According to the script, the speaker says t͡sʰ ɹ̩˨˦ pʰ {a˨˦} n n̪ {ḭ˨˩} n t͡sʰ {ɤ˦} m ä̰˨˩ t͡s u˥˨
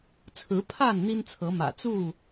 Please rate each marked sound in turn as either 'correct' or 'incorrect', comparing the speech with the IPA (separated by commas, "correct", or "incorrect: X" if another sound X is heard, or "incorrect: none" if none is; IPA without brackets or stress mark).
incorrect: a˥˨, incorrect: i˦, incorrect: ɤ˨˦